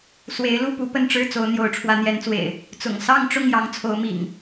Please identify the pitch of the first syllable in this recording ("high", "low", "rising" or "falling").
rising